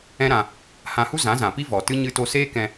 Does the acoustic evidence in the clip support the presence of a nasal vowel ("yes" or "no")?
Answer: yes